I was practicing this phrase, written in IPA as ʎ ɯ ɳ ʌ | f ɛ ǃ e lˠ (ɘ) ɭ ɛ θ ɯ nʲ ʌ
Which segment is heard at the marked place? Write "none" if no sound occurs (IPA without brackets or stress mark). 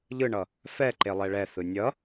ɛ